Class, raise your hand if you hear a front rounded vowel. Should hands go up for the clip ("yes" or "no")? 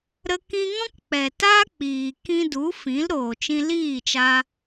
no